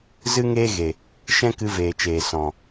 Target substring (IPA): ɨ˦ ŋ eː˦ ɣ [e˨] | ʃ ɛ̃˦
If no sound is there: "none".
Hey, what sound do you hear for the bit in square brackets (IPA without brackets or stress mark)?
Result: e˨